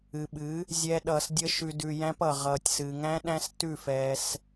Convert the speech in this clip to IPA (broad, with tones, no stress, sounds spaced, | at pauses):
ɨ˨ ɓ ɨ˨˦ | zʲ ɛː˦ ɗ ʌː˧ s dʲ ə˦ ʃ ʉ˧ d ʉ˧ j æ̃˦ p ʌ˨ ʁ ʌː˨ tʲ s ɨ˨ ŋ æ̃˦ ɗ æ̃˦ s t ʉ˦˨ f ɛː˧ s